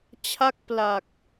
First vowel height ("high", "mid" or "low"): low